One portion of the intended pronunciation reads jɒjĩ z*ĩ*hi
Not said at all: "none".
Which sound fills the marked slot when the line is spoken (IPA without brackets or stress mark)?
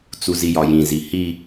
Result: i